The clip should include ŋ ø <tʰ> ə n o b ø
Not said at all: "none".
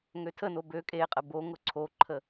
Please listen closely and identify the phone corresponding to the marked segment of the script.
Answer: tʰ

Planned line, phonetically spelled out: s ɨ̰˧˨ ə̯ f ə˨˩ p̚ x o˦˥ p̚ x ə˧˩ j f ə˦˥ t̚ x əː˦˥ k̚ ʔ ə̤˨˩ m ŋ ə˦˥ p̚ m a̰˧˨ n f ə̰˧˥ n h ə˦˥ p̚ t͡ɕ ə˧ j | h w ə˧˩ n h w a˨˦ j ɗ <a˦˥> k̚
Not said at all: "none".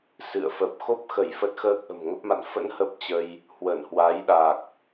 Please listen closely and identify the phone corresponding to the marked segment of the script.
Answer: a˨˩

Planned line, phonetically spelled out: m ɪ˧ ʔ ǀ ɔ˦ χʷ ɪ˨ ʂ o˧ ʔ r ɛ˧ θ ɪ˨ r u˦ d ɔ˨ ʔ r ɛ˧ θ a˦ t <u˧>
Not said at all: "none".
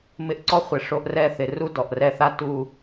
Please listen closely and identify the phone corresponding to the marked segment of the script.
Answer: u˧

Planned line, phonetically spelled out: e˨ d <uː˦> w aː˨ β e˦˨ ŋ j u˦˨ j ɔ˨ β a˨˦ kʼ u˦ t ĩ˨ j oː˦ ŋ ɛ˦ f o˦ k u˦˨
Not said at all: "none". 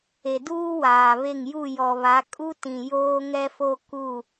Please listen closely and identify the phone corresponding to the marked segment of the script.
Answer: uː˦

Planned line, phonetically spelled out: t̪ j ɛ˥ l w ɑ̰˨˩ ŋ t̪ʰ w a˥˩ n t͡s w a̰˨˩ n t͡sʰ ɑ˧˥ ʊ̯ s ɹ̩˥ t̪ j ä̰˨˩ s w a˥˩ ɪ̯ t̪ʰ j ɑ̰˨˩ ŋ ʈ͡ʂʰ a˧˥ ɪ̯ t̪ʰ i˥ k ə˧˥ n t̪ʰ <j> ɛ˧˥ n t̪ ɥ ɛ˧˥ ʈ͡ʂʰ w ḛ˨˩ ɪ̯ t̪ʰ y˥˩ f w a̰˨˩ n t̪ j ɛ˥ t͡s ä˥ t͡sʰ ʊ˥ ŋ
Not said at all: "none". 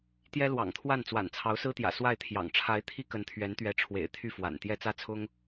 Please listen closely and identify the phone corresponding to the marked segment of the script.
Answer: ɥ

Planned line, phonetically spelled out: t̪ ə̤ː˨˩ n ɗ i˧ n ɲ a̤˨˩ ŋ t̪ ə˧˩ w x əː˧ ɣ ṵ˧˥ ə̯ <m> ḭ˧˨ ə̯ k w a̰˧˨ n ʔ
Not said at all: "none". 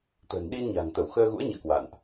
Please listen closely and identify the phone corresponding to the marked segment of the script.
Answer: ɲ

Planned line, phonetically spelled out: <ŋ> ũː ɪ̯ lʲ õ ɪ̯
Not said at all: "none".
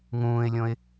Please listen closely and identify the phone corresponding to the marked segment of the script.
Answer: ŋ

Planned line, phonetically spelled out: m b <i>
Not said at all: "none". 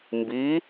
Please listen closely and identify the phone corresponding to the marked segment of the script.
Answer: i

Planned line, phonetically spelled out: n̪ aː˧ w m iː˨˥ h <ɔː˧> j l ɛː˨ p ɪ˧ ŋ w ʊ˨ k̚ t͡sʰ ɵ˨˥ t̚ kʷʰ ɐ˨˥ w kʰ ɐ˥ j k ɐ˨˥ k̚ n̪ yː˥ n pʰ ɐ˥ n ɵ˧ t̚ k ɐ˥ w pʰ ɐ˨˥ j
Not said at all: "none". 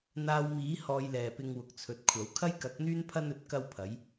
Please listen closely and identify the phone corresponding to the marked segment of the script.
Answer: ɔː˧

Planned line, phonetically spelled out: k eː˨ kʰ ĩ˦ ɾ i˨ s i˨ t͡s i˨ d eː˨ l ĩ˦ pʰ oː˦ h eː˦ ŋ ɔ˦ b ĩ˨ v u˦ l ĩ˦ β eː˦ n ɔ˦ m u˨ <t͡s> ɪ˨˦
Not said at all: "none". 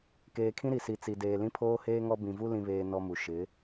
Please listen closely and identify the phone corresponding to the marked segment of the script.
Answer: ʃ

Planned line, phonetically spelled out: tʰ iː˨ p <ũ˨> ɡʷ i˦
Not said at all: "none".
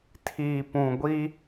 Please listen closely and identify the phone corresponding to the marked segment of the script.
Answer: ũ˨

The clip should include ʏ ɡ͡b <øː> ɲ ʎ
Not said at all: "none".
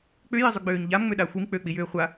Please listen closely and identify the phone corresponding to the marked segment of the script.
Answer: øː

